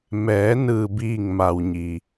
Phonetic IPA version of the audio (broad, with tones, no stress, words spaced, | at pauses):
mɛː˩˧ nɯː˩biː˧˩ŋ ma˩wɲi˩